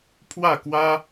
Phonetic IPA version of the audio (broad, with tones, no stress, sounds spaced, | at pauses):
pʰ w a˥˧ k w a˦